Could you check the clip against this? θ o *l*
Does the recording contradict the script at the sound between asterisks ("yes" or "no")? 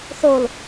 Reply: no